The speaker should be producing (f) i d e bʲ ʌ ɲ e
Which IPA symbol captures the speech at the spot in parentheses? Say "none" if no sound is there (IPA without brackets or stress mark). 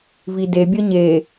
v